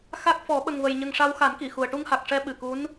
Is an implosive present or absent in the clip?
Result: present